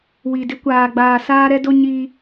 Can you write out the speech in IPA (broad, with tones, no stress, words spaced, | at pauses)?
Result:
wi˨dɪ˦ kʷaː˨ ɡ͡baː˨saː˦ɾɛ˦do˦ ɲi˦